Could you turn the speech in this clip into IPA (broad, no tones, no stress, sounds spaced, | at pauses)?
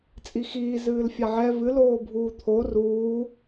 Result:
t͡sʼ i x iː z ɨː l fʲ a ʕ ɛ v ɨ l oː bʱ uː t̪ʰ o r uː